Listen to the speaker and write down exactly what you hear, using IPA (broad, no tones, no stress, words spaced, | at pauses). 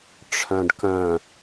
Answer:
ʈ͡ʂʰœ̃ɖkœ̃